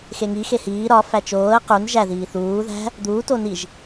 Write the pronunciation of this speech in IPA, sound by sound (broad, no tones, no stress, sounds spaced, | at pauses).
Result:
x e ŋ i x e h iː ɾ ɒ f æ t͡ʃ oː ə̯ q u n ʒ æ ð iː θ uː ð æ̤ | d̪ uː t o n i ʒ